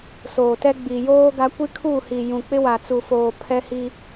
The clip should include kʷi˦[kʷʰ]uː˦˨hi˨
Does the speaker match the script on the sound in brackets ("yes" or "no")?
no